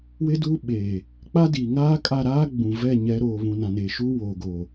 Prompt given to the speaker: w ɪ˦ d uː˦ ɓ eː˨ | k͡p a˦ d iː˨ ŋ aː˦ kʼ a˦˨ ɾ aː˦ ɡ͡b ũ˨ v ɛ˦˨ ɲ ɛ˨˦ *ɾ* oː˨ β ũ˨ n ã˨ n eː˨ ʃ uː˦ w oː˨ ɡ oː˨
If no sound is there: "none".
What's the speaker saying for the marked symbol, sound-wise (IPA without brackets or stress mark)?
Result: ɾ